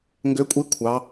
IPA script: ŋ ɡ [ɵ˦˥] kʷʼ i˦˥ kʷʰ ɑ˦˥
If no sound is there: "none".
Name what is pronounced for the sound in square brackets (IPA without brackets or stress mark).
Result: ø˦˥